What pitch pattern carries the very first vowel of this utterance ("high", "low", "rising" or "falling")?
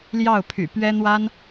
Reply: falling